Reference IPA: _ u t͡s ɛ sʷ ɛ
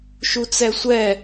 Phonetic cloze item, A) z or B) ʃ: B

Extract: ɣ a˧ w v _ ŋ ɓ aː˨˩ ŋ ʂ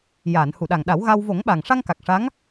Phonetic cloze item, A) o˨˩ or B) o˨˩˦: B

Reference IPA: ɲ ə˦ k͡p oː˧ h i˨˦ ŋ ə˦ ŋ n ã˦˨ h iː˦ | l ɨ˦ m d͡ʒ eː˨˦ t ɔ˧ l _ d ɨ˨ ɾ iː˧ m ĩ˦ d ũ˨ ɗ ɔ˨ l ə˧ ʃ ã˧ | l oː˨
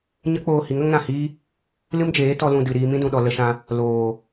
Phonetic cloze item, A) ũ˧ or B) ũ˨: A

